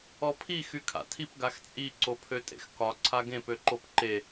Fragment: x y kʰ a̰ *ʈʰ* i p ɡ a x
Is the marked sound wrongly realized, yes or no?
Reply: yes